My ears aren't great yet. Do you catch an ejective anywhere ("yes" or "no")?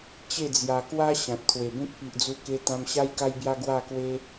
no